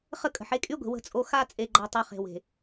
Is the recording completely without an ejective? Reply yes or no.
no